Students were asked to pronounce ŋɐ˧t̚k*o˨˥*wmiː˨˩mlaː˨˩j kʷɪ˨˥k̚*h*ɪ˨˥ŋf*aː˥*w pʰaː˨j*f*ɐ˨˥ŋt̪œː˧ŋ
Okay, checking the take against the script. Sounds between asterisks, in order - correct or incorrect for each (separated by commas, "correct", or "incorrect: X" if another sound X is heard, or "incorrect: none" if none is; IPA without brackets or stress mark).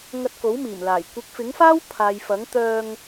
correct, incorrect: f, correct, correct